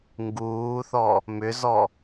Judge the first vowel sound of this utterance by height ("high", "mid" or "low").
high